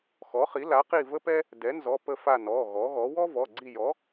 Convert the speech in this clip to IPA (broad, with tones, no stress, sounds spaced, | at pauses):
x ɔ˩˥ χ i˩˥ l a˩˥ q i˦˨ v ə˥ p ɛ˥ | d ɛ˩˥ n z ɔ˩˧˩ p ə˦˨ f a˦˨ n ɔ˩˧˩ ɣ ɔ˩˥ ɣ ɔ˩˥ w ɔ˥ v ɔ˩˧˩ ɡ͡ǀ i˦˨ j ɔ˩˥